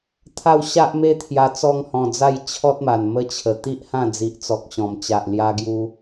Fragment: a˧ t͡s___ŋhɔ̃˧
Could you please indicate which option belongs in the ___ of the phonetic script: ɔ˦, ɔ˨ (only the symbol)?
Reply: ɔ˦